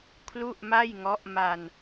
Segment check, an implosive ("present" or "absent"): absent